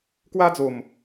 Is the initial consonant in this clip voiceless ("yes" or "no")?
yes